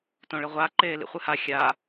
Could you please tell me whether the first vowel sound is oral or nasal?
nasal